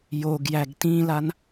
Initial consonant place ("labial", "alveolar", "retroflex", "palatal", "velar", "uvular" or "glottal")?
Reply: palatal